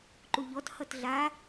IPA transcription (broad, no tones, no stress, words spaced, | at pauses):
ǃuʎɔt hʌtɮa